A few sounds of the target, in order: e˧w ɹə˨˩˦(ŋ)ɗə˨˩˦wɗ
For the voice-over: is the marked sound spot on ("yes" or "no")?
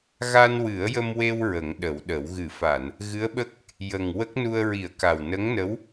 yes